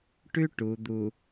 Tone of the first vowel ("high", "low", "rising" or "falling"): high